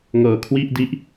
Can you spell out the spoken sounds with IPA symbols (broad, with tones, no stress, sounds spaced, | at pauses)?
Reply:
ŋ ɤː˨˩ kʰ w i˥˩ ʔ d i˦˥ ʔ